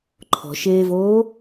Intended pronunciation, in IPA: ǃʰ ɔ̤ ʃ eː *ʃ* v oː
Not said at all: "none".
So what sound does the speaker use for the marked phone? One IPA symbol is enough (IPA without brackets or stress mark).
none